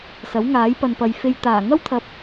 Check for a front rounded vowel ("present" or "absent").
absent